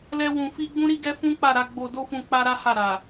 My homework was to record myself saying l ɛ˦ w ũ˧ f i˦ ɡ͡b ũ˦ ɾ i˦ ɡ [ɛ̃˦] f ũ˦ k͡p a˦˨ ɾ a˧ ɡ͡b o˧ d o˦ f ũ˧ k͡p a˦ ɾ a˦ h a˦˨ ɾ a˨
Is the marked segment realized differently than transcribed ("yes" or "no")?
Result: yes